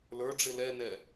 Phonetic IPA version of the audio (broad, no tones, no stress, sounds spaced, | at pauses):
l ə˞ ɖ͡ʐ ɪ l ɛ n ɛ